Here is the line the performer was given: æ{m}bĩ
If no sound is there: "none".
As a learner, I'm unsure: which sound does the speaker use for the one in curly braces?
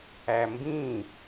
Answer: m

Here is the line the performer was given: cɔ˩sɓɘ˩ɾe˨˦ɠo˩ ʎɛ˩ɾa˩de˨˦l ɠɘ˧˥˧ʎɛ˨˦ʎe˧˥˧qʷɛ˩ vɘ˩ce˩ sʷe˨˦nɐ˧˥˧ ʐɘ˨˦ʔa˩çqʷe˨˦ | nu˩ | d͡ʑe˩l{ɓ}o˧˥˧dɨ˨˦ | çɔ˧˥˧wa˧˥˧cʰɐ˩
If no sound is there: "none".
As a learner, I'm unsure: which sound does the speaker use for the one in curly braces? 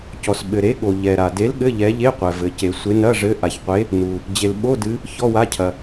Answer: ɓ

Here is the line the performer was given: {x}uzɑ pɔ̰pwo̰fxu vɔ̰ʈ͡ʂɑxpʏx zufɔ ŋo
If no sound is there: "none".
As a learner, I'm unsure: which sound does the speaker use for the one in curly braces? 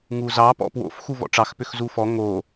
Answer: ŋ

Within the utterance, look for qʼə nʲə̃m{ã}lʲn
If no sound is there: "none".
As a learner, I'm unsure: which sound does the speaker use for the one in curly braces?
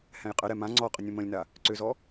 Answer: ə̃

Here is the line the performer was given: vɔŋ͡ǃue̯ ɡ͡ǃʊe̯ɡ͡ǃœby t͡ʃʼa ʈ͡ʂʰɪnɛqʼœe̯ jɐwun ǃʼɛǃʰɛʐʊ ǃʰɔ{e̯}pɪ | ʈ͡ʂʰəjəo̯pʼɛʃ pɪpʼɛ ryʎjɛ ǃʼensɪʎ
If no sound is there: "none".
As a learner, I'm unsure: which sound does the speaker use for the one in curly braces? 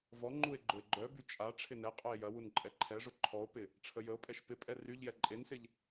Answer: o̯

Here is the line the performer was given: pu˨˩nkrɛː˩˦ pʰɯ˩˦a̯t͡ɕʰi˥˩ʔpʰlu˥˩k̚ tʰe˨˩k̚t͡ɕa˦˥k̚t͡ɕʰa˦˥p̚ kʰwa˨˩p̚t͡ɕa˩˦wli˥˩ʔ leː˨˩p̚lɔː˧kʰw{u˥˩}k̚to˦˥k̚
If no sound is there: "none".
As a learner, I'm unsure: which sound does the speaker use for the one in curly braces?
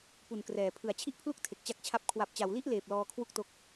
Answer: u˥˩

